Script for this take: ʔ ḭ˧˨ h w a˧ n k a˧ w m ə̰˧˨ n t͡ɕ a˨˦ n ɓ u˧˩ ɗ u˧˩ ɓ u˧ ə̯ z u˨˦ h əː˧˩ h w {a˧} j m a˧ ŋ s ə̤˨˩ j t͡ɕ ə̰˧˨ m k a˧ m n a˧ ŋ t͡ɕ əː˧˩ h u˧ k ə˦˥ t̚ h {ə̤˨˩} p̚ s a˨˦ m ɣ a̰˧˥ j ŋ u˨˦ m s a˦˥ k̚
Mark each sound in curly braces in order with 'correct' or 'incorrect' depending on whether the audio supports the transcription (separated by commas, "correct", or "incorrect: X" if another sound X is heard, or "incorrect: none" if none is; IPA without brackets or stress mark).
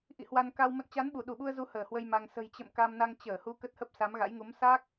incorrect: ə˧, incorrect: ə˦˥